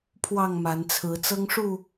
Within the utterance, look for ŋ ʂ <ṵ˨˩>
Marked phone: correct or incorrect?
incorrect